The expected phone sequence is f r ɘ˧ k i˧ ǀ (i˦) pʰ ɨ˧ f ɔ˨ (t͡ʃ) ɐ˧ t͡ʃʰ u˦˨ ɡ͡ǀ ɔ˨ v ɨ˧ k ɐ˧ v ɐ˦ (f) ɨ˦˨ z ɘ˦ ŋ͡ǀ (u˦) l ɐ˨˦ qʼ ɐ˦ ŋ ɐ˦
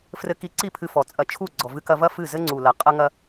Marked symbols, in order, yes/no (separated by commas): no, no, yes, no